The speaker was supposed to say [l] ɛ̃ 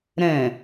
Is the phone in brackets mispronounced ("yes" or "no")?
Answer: yes